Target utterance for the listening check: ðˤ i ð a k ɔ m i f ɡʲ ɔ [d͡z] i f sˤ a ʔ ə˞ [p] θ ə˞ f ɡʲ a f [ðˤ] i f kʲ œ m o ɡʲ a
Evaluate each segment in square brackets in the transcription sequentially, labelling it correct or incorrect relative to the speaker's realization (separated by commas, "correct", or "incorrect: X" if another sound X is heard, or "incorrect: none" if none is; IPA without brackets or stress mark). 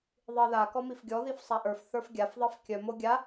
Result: incorrect: ð, incorrect: f, correct